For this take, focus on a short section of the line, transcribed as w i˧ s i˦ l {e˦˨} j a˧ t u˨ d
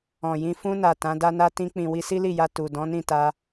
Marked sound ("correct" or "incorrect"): incorrect